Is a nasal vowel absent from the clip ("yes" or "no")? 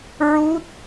yes